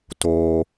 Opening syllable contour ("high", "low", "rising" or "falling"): low